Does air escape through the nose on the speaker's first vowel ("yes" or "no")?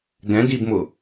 yes